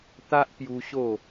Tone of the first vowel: high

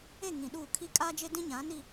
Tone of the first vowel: falling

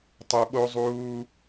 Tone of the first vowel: low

